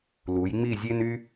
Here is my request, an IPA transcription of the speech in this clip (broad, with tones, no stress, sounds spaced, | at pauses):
l u˩˧ j ŋ͡m i˦˨ zʲ e˥ n y˥